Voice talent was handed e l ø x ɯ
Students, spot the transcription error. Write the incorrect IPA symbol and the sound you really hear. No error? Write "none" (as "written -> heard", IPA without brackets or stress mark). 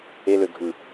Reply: x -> ɡʱ